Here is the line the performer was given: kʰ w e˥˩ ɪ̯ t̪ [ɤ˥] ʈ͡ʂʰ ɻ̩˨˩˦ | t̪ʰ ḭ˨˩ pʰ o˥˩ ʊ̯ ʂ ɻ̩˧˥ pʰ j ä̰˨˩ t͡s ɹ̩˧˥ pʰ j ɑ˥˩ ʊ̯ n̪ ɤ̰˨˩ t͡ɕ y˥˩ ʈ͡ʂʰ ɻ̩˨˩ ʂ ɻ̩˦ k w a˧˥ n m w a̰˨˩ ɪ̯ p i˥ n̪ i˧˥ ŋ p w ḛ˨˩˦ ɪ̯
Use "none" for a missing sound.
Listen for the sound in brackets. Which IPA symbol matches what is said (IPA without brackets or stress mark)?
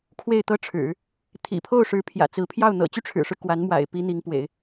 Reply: ɤ˥